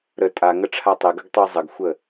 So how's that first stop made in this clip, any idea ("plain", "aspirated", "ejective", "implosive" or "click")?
ejective